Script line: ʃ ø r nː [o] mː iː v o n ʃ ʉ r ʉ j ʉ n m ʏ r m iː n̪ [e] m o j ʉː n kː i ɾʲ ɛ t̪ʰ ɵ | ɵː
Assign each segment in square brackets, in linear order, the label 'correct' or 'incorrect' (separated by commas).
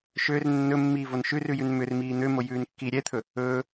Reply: incorrect, incorrect